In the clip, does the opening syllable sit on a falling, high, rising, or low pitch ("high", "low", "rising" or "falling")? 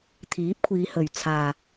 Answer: rising